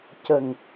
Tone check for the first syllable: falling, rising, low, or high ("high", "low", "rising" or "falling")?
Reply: low